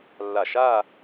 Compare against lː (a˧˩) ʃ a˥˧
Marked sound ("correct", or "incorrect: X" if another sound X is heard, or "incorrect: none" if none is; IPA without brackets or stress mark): correct